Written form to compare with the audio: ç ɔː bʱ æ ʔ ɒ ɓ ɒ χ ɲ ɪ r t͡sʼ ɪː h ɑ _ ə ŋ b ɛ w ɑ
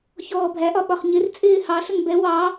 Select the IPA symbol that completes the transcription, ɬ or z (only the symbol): ɬ